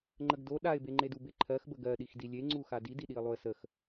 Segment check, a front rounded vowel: absent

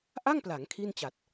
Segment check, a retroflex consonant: absent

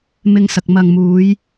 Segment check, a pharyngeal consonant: absent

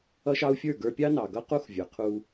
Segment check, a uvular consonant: present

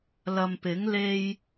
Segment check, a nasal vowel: absent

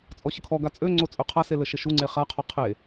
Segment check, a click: present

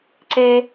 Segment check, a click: present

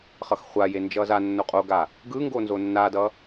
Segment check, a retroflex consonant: absent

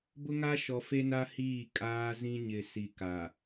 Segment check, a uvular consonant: absent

